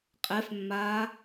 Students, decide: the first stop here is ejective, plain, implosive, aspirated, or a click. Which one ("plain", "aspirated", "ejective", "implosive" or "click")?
ejective